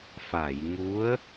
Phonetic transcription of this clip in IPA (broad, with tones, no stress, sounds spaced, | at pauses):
f a˨˩˨ j ŋ u˧˥ ə̯